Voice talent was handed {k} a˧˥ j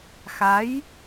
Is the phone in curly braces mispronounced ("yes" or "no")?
yes